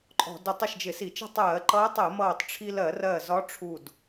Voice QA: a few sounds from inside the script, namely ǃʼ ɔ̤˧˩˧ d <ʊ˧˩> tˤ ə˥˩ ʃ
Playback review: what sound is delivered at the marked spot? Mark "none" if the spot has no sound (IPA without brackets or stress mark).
ʊ˧˩